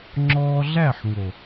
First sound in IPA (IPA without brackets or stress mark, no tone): ŋ͡ǁ